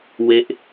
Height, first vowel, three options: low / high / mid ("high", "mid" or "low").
mid